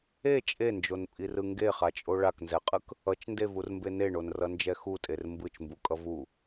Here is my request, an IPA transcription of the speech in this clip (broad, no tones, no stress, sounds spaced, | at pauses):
e t͡ʃʼ e n d͡ʒ o n pʼ i r ɯ ŋ ɡ e χ a t͡ʃʼ o ɭ a k n z ɛ qʼ ɯ k | ʌ t͡ʃ n d e v u r m b e n e ɳ o n r ʌ n d͡ʒ ɛ x u tʼ e r m b ɯ t͡ʃ m b u kʼ ʌ v u